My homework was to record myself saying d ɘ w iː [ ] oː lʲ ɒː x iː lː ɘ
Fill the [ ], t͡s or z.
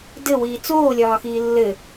t͡s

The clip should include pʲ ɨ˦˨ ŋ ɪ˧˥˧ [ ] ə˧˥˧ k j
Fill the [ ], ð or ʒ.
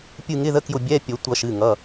ð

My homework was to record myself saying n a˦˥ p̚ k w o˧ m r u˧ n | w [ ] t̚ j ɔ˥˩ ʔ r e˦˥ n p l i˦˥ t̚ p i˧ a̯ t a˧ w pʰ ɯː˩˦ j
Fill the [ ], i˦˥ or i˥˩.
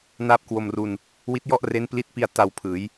i˦˥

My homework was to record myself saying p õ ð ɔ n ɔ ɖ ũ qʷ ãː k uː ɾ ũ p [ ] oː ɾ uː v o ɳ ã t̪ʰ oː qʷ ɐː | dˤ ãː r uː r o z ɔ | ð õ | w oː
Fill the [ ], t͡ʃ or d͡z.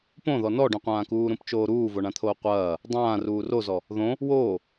t͡ʃ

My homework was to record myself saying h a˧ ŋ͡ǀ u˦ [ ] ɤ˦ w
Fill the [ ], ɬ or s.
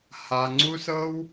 s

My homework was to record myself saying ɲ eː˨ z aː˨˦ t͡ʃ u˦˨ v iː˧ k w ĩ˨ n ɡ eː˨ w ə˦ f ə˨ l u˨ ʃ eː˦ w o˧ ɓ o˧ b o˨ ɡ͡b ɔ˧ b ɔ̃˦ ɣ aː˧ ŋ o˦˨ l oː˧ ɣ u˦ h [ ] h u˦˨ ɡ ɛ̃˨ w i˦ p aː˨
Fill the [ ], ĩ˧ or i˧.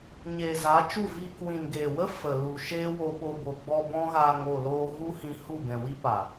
ĩ˧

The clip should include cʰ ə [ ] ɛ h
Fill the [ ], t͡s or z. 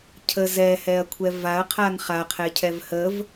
z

